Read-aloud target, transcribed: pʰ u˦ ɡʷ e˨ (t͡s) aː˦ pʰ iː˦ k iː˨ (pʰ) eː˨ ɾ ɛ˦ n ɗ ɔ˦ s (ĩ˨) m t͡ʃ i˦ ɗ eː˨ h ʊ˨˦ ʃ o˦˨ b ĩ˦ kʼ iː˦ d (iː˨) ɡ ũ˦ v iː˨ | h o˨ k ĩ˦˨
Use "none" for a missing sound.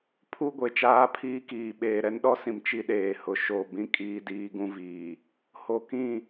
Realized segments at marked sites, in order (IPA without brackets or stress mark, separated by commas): t͡ʃ, ɓ, ĩ˨, iː˦